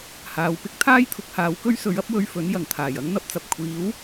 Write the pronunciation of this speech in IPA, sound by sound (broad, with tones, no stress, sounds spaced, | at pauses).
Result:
h aː˨ w p ɪ˥ k̚ t̪ʰ aː˥ j t̪ʰ ʊ˨ k̚ h aː˨˥ w k ɵ˥ ɥ s ɵ˨˥ ɥ ɐ˥ p̚ w ɵ˧ ɥ f ɵ˨˥ n j ɐ˨˩ ŋ t̪ʰ aː˨˩ j ɐ˥ ŋ n̪ ɐ˧ p̚ t͡s ɐ˨ p̚ kʷʰ iː˨˥ w